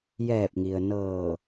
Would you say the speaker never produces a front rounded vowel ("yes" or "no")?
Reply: yes